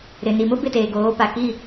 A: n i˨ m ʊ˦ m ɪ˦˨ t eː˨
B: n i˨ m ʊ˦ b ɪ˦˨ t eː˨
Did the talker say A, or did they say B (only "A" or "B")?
B